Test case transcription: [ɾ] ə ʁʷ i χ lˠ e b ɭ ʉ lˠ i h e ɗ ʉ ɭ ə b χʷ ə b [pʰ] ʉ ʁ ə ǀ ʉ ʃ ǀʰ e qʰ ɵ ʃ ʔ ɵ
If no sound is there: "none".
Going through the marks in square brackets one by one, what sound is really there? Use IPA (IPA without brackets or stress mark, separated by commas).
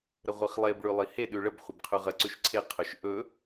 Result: ɾ, qʰ